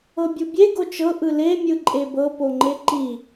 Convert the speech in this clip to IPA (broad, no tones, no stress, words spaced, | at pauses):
ɤbʲubʲe ɡot͡ʃɤ ʔɯle mʲɯǃʼebɤ poŋ͡ǃeǃi